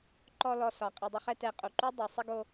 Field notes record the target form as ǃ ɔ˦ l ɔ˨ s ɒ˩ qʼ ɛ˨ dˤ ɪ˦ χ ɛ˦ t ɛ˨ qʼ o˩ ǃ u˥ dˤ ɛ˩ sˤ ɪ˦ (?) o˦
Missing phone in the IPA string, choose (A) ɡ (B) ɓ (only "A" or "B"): A